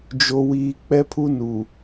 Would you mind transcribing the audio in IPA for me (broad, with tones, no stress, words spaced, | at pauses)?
d͡ʒo˨wiː˨ k͡pɛ˦pʰu˦nu˨